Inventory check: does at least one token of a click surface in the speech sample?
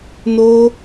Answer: no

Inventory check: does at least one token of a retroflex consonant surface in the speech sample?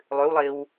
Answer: no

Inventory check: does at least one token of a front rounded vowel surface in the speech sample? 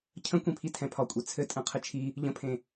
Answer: no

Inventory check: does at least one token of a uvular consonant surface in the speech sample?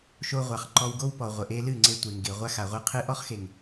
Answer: yes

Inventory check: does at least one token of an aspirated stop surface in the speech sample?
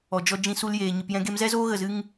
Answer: no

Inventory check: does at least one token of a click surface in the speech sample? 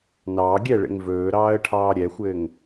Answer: no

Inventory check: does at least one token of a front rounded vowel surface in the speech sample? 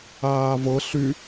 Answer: yes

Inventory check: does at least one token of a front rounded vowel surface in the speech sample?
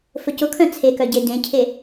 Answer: yes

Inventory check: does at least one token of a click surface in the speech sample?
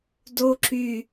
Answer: yes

